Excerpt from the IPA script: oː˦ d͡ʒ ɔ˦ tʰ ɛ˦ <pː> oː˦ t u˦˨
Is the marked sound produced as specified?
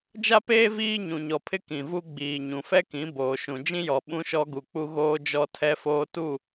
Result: no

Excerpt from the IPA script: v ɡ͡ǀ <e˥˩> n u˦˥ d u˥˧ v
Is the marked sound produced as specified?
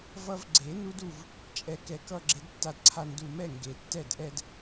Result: no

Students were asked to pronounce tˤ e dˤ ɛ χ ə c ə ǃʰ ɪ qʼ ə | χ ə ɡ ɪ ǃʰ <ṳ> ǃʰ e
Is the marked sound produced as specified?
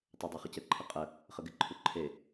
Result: no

